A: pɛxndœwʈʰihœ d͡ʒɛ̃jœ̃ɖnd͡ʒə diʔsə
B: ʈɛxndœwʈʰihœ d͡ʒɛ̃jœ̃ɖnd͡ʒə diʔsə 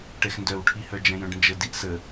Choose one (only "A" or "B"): B